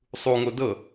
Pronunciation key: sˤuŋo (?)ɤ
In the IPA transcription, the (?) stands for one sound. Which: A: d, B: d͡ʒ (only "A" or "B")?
A